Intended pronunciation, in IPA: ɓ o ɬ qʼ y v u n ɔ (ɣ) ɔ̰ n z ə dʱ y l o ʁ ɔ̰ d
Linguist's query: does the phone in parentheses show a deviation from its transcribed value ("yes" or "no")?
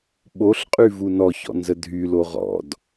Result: yes